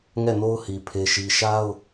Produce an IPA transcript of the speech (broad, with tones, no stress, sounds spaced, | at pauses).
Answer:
ŋ ɛ˦˨ n o˦ ʊ̯ h i˨ pʰ e˦ ʃ i˦ ʃ a˦ ʊ̯